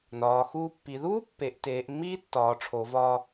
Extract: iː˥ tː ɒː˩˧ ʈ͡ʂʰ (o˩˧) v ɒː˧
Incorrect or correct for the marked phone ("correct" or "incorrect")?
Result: correct